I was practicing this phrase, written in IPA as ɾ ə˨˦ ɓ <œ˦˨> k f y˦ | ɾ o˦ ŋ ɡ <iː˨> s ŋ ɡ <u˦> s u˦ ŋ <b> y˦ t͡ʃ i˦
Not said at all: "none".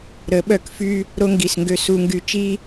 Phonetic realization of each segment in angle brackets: œ˦˨, i˨, ø˦, ɡ

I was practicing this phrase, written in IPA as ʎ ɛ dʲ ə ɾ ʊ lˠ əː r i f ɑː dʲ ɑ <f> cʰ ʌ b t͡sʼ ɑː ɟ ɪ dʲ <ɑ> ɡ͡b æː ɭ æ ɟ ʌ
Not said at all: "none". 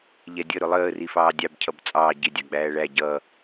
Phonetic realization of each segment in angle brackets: b, ɑ

